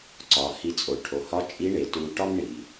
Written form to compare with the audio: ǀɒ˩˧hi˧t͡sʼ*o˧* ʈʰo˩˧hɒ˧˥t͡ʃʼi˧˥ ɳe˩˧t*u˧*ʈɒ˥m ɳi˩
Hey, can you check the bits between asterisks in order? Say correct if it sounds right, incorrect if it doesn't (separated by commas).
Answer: incorrect, correct